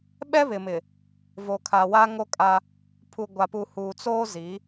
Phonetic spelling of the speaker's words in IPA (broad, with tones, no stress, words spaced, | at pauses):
ɓɛ˦βɪ˨mɪ˨ | vo˨kʰa˨ wa˦ŋo˦kʼa˦ | pʰu˨ɡʷa˨pu˨ huː˨t͡soː˦ zi˨˦